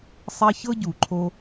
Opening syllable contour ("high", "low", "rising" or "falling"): high